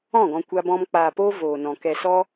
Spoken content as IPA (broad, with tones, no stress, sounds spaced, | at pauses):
ɔ̃˦˨ ɡ ɔ̃˧ kʷ a˦ b ɔ̃˦ m k͡p aː˧ p oː˦ v oː˨ n ɔ̃˨ k ɛ˧ s ɔ˦